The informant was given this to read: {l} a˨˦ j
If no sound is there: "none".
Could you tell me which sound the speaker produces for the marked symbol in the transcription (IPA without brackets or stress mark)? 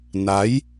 n